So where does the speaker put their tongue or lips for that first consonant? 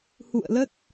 throat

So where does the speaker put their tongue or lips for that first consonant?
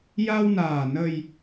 palate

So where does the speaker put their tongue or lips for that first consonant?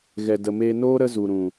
velum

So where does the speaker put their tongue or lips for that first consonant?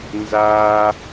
tongue tip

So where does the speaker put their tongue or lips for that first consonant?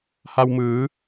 throat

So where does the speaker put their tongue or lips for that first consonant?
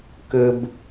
velum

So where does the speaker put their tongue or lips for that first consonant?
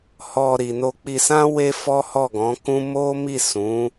throat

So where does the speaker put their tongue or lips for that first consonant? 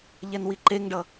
palate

